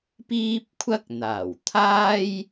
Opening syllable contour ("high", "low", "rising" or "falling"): high